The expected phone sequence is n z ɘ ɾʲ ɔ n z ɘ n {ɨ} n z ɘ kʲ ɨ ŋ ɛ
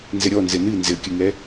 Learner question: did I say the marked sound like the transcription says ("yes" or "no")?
yes